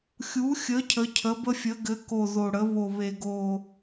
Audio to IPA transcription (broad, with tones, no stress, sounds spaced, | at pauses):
xʲ u˨˦ xʲ ə˨˦ cʰ ə˨˦ cʰ ə˨˦ b ə˦ fʲ ə˨˦ ɡ ɘ˨˦ k o˨˩ ð o˨˩ ɽ ə˨˦ β o˨˩ β e˨˩ ɡ o˨˩